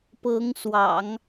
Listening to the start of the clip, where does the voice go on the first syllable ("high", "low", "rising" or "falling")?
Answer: rising